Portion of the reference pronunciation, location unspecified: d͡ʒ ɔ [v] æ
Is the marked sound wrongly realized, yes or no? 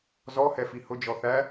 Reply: yes